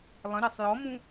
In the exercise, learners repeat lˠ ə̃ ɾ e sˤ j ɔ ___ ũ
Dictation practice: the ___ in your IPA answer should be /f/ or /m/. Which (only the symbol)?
m